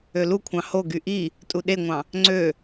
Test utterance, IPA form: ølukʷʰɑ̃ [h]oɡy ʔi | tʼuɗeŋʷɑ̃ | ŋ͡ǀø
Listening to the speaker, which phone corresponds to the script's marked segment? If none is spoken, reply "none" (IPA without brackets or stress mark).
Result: h